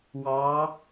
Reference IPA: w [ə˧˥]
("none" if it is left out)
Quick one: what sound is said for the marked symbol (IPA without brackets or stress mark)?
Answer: ɑ˧˥